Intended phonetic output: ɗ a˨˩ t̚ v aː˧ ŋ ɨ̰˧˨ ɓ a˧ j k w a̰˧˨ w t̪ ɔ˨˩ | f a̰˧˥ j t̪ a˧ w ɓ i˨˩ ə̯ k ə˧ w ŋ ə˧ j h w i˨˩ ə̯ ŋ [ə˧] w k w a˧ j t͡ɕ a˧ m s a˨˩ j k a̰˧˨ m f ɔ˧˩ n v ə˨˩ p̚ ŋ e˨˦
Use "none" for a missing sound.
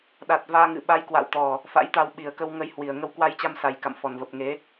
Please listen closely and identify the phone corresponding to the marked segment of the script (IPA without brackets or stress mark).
ə˧